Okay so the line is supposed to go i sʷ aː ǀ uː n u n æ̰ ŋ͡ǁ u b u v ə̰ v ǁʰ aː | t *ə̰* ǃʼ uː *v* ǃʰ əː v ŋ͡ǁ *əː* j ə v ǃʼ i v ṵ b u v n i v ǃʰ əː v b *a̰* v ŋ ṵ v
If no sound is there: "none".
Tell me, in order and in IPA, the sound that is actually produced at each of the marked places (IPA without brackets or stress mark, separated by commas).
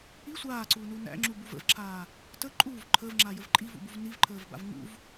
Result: ə, v, aː, a̰